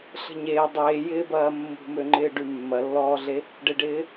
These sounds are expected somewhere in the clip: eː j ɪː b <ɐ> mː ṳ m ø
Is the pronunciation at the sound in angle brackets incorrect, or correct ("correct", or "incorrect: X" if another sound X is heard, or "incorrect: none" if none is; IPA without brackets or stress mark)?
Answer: incorrect: ɐː